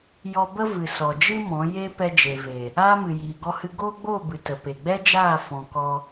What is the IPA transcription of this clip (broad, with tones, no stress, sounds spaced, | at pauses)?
j ɔ˧ b ə˦ v ɨ˨ s ɔ˨ d͡ʒ ɨ˦ m ɔ̃˨˦ j e˦ p ɛ˧ d͡ʒ e˨ v e˨ | aː˦ m ɨ˨ j iː˨ ɡ ɔ˧ h ɨ˧ ɡ oː˦ ɡ͡b o˦˨ b ɨ˨ t ə˨ p e˨ ɡ͡b ɛ˦ d͡ʒ aː˦˨ f ɔ̃˧ k ɔ˦